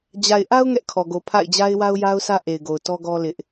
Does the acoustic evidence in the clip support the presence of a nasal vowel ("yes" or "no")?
no